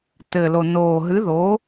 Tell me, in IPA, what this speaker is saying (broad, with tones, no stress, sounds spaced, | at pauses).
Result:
t ɘ˨˩ l o˨˩ n oː˨˩ ɦ ɨ˨˥ ð o˨˥